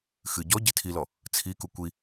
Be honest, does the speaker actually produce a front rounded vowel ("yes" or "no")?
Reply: no